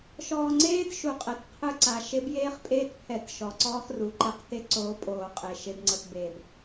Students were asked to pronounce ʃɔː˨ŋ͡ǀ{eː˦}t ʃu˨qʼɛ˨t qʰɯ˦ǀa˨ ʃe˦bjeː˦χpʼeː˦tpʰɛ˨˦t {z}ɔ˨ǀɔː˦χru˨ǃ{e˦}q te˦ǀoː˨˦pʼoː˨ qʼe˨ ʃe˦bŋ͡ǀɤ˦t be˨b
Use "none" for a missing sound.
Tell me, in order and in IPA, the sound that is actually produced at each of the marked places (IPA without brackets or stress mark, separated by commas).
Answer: eː˦, ʃ, ɛ˦